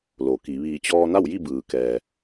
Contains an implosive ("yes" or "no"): no